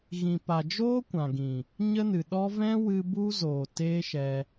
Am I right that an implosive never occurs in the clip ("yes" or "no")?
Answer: no